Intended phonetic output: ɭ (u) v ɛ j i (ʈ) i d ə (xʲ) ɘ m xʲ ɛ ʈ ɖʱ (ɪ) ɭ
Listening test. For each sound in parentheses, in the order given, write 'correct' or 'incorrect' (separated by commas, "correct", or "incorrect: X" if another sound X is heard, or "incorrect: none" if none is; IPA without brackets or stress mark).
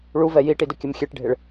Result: correct, correct, incorrect: kʲ, correct